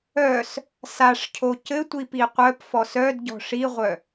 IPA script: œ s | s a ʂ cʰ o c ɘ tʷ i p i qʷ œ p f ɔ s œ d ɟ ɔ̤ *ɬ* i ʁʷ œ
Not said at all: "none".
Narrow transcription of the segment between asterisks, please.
ʂ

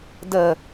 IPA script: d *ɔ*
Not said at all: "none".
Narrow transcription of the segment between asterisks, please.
ə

